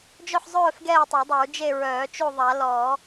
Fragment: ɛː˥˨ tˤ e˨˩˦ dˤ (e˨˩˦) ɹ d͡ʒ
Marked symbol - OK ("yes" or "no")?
no